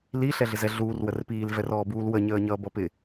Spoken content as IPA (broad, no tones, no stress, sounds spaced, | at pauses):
l i ɬ ɛ ɮ ɪ z ɛ ɮ uː r w ə r p iː l v ɛ r ɔː b uː l w ə ɲ əː ɲ ʌː b ʌ p ɪ